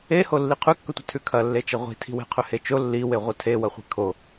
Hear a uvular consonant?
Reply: yes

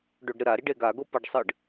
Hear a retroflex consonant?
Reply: yes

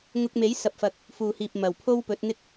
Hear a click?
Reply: no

